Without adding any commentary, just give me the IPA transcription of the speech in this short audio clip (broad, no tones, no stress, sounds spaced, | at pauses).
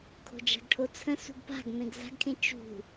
kʰ o̤ d͡ʒ a̤ ɡ ʈʰ o t͡sʰ ə̃ s ṳ ɡ p a̤ ɡ m ẽ ɡ z a̤ ɡ kʰ ẽ t͡ʃ ṳ